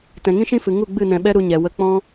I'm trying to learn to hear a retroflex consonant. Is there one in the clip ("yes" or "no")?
no